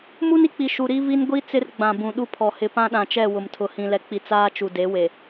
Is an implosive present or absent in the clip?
present